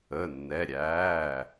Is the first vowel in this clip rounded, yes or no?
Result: no